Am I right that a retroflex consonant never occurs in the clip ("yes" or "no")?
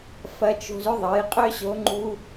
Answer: yes